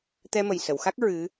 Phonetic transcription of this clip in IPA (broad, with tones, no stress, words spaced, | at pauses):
t̪ɛ˧mə˨˩j sə˨˩˨wxa˦˥k̚ ɹɨ˧˥